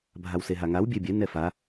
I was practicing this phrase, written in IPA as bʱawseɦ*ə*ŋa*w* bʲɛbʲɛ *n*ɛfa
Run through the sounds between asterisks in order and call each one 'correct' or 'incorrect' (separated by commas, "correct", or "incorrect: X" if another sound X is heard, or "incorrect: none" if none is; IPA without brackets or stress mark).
incorrect: a, correct, correct